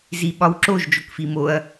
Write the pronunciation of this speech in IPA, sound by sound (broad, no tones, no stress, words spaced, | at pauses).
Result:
ziɓɒwǁoʒ d͡ʒokfimoɐ̯